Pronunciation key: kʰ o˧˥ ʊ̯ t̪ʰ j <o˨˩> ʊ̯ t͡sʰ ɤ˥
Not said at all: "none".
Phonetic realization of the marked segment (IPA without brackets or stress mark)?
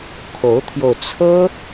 o˧